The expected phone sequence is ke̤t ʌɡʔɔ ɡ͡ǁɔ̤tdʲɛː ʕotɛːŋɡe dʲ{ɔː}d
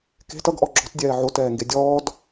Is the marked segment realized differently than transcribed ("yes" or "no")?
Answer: no